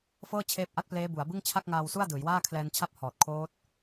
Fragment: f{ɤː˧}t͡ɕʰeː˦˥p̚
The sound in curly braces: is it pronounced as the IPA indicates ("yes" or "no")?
no